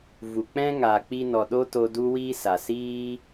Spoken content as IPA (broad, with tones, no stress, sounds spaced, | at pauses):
v u˨ k͡p ɛ̃˦ ŋ aː˨ k͡p i˧ n ɔ˨ ɗ o˦ t o˧ d u˦ w iː˦ s a˨ s iː˦